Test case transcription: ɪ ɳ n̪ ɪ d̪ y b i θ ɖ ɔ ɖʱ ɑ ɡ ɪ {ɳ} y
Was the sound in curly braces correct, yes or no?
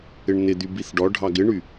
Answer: yes